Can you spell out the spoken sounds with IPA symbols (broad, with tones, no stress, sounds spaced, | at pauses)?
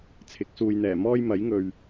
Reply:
t͡sʰ ɪ˨˥ k̚ s uː˨ j n̪ ɛː˨˩ m ɔː˥ j m ɐ˨˥ j ŋ ɵ˨ ɥ